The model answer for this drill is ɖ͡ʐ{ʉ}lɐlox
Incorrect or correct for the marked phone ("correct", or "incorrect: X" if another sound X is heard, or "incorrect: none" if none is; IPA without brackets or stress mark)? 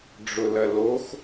incorrect: ʊ